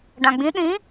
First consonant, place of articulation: retroflex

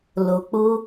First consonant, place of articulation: alveolar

